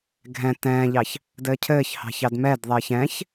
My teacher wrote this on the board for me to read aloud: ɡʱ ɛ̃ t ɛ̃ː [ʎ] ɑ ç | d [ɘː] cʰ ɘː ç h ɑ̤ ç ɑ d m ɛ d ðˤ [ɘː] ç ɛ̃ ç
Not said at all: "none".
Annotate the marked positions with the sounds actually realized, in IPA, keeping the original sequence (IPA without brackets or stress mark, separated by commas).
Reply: ʎ, ɘː, ɘː